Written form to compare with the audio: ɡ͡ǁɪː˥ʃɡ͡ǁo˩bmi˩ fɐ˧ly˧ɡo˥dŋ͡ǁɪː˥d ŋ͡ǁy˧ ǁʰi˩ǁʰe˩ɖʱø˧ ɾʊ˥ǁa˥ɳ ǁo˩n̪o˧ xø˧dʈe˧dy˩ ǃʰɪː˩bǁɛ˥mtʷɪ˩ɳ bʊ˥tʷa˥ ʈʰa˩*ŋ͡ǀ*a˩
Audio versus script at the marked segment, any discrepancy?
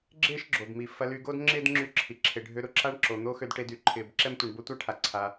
yes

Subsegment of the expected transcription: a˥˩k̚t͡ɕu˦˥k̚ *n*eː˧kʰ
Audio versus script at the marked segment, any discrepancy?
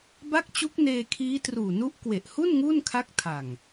no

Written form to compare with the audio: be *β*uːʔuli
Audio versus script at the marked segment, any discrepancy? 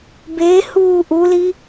yes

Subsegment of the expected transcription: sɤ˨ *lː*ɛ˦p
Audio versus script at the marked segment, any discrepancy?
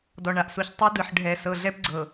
yes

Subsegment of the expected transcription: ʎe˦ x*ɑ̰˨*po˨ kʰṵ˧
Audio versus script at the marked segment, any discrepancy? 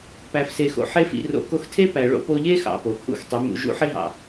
no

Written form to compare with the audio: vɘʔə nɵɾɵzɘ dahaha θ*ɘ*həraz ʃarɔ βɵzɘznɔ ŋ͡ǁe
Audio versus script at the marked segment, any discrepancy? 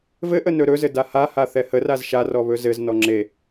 yes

